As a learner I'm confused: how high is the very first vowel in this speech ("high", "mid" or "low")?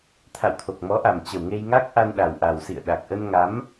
low